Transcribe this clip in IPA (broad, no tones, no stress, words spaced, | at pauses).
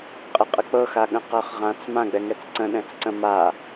qʼəqʼək͡pɤ xaɠə̃qɤχʁãt͡s mãɡ͡bɛŋɛt͡s ǀə̃ ɗɛ̃t͡sǀə̃ ma